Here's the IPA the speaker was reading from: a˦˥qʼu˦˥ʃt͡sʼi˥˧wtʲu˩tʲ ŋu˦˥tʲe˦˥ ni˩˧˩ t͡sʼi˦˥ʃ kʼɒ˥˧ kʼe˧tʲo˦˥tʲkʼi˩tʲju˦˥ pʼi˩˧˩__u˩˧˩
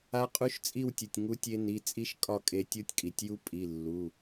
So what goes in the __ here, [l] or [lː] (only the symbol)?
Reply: lː